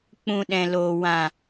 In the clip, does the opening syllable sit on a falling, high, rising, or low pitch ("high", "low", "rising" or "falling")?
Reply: low